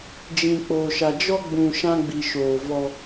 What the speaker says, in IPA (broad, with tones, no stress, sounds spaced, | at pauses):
d͡ʒ ĩ˨ k͡p o˨ ʃ a˨ d͡ʒ ɔ˦ ɡ͡b ũ˨ ʃ ã˦ ɡ͡b i˨ ʃ oː˨ v ɔ˦